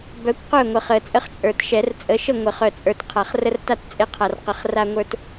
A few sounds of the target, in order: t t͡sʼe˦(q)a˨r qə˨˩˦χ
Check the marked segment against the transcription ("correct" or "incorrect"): incorrect